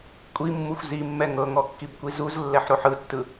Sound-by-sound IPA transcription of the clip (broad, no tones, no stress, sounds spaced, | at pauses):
kʷʼ i mː u xʷ z i mː ɛ ŋ ɤ ŋ ɔ kː i b kʷ i z u z lː ɛ ħ ɾ o ħ ɯ tː ɯ